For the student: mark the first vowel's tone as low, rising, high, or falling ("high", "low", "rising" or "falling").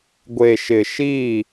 low